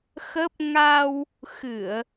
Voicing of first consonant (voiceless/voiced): voiceless